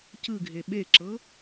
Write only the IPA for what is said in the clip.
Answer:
c ɯ ɡʱ e ɓ e ǁ ɤ

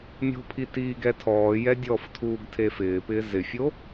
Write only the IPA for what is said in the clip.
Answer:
mʲ o̤ pʰ i t iː ɡ ɛ tʰ ɔː j ɛ dʲ ɔ f tʰ uː ɡ tʰ e f ɪː p ɪː z ɪ fʲ o

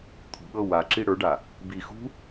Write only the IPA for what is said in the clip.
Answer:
t̪ʰ ṳ ɠ ɤ w a ǁ i ɽ ə˞ ɖ a | b i x ṳ

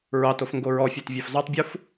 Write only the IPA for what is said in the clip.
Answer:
ɹ ɑ t o f ŋ ɡ o ɹ ɔ fʲ ɑ t vʲ ɑ f z ɑ tˤ bʲ u f

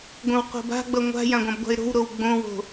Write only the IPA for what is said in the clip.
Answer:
ɡʷ ə̃ w q o̤ b a̤ ɡ͡b ʌ ŋʷ a̤ j ã ɡʷ ã b ɡʷ a̤ ɪ̯ ɾ o̤ w ɾ o w ɡ͡b õ w o̤

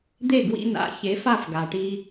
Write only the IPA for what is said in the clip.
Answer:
d̪ e˥˩ ɡ w ḭ˧ n a̰˩˥ ç e˩˥ f a˥˩ f ɡ a˩ ʈ i˧

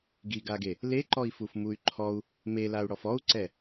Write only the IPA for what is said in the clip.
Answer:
ɡ i ɡ a ɡ e | l e ǃ ɔ i̯ f u f m u y̯ ǃʰ ɔ u̯ | m e l a u̯ ɽ ɔ f ɔ u̯ ǀ ɛ

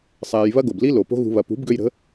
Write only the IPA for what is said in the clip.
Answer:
sˤ ɛː˧ j β ɐ˦ ɡ o˨ b l i˦ l o˨ p o̤˦ ɣ ṳ˧ β ɐ˨ p ṳ˨˦ b ɡ ø˧ j ɾ ə̤˨˦

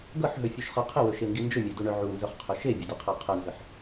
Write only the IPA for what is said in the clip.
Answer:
ɡ ɤ ħ ɦ ɵ fʲ u ʃ χ ɤ qʰ ɪ w ɵ ʃ e ŋ ɡ i n d͡ʒ ɵ mʲ ɛ d u ɳ œ ʕ u n z œ χ qʰ ɵ ʃ e bʲ ə d ɪ qʰ ɤ qʰ ə n z ə ħ

